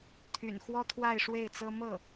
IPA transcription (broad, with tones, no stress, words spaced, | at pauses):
t̪ʰy̰˨˩nxwɔ˥ t̪ʰwa˥˧ɪ̯ ʂwe˥˩ɪ̯t͡sɤ˥ mɤ˥˩